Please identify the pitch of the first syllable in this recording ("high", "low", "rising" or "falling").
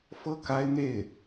falling